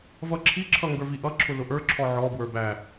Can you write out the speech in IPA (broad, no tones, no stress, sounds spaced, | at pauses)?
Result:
v ʌ ǁʰ i ǁʰ ʌ ŋ ɡ ə˞ v i ʔ ʌ ǁʰ ʊ l ʊ ʔ ə˞ ǁʰ ɔ ʕ ɔ b w ə˞ b æ